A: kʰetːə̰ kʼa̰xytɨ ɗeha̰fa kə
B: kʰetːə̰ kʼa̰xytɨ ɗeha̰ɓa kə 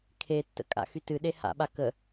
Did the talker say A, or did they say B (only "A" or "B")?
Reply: B